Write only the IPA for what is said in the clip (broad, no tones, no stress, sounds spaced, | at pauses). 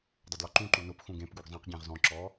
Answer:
dˤ ʊ d l ɔ ǃ ũ ǃ u n ʊ p x ũ ɡ ẽ p ɡ u ɡ zˤ ẽ q ɟ ẽ ʁ z ɔ̃ ǁ ɔ